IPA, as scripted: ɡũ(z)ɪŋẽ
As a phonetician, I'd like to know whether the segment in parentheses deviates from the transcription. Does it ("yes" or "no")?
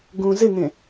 no